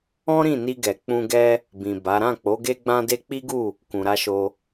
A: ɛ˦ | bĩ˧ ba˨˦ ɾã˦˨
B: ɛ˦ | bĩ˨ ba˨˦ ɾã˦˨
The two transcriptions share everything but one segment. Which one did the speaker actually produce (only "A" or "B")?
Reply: B